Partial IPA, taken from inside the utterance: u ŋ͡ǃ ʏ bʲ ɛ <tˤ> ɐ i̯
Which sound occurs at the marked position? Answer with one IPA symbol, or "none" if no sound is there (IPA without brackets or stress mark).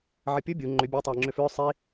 tˤ